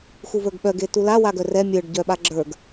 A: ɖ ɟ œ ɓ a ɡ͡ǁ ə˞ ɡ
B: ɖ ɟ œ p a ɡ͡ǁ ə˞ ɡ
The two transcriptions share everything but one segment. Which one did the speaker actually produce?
A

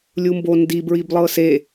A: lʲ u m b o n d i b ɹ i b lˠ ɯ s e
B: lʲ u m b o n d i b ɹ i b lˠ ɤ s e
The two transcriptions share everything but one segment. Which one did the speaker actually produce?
B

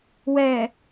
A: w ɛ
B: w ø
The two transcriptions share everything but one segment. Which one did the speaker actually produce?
A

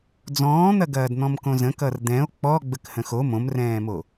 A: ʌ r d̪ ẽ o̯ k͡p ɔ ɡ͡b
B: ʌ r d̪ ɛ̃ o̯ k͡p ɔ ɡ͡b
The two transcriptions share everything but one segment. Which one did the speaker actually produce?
B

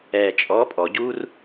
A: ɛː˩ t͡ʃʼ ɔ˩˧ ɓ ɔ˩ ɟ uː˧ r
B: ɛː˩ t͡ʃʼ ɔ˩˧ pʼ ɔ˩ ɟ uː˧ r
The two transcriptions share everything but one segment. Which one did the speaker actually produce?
B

